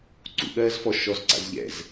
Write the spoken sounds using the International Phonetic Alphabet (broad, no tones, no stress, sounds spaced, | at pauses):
ǀ ṵ ɠ ɜː z f ɔ ʃ ɔ z ǀ a̰ z ʎ ɛ̰ z